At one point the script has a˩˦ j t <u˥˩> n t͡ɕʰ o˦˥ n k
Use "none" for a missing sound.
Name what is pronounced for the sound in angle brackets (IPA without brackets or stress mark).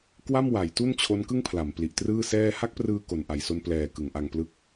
u˥˩